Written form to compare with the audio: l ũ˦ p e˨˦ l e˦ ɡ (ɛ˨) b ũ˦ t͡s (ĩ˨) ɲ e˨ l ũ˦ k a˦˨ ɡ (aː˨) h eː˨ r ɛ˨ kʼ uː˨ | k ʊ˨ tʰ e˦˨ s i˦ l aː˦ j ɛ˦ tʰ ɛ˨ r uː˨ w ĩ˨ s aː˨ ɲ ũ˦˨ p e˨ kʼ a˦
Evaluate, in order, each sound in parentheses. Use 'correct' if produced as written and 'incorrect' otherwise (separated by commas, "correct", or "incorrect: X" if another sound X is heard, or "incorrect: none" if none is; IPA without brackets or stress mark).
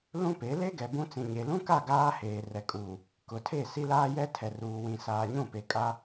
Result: correct, correct, incorrect: aː˦